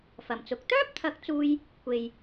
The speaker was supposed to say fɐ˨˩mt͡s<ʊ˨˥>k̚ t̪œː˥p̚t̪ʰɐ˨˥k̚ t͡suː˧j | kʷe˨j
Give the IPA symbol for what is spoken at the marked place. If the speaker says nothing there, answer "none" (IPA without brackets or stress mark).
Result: ʊ˨˥